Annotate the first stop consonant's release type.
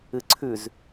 click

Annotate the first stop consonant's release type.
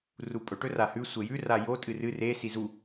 ejective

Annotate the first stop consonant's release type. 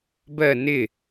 plain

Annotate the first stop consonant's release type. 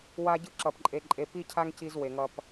plain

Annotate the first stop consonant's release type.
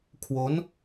aspirated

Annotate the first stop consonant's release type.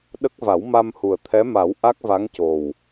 implosive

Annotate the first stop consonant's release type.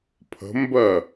aspirated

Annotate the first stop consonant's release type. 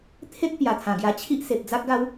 aspirated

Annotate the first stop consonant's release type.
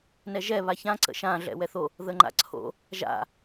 click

